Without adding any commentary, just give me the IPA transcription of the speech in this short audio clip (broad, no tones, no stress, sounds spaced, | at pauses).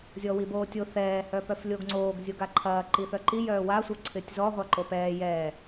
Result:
zʲ ɔ w i b oː tʲ o θ ɛː h œ p œ f lʲ o ɡ ŋ͡ǀ oː ɡ zʲ o ɡ a ǃʰ ɐː ǃ i θ œ ǃ i j œː w a sʷ œ ǀʰ ɪː tʲ z ɔ ʁʷ a ǃ o p ɛː j ɛː